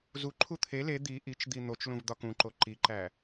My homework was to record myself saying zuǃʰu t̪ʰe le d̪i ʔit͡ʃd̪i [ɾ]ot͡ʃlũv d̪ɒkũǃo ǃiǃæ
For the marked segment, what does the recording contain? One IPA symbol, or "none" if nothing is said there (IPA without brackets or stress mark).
n̪